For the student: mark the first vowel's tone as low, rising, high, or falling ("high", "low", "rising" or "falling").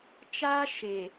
high